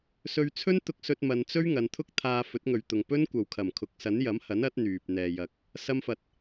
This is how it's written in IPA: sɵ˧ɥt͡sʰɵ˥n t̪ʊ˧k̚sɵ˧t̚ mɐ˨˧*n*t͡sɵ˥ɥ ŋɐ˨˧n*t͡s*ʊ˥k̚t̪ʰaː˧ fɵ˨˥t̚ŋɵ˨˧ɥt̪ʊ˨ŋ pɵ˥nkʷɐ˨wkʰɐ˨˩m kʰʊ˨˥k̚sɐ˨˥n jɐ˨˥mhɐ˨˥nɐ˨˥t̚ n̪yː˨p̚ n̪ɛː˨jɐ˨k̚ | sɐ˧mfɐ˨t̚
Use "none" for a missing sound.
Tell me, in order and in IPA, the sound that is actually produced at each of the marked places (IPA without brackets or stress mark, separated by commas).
n, t̪ʰ